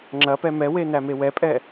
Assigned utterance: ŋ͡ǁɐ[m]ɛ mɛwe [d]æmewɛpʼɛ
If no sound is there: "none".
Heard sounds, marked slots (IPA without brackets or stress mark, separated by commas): p, n